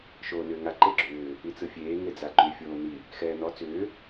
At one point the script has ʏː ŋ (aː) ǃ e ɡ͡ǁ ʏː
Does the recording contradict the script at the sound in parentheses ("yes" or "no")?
yes